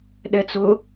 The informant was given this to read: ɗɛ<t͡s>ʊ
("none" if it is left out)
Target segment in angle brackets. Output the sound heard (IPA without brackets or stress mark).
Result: t͡s